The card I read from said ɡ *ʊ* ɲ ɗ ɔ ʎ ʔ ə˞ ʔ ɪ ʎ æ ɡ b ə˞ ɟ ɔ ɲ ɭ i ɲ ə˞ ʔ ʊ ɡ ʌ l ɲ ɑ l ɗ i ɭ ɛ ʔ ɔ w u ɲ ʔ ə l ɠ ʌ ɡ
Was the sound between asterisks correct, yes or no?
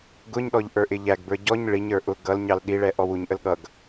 yes